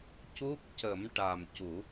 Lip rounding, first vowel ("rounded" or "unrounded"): rounded